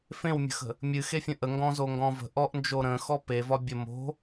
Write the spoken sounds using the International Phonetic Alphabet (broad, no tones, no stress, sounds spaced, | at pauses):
f ẽ w mʲ ə̤ x ə̤ | mʲ ɨ x e fʲ ə̃ ʔ ə ŋ ɡ ɔ̃ z o ŋ ɡ ɔ̃ v ə̤ ʔ ɔ ʔ n d͡ʒ o ɾ ə̃ x ɔ p e v ɒ bʲ ə m o̤